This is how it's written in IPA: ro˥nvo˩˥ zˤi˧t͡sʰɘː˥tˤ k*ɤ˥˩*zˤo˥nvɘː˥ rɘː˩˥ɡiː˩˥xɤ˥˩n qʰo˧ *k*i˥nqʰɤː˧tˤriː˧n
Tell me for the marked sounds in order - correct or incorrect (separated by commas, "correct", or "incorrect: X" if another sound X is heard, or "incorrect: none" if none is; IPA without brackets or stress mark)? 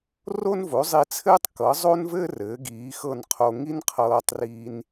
incorrect: ɤ˩˥, incorrect: ŋ